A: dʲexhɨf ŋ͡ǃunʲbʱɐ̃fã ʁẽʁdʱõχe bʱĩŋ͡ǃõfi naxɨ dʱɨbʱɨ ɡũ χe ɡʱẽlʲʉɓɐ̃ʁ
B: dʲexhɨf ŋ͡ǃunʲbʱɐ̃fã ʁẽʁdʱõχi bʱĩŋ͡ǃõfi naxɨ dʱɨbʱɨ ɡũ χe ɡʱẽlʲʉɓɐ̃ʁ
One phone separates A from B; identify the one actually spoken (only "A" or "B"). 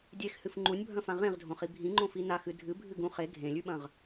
B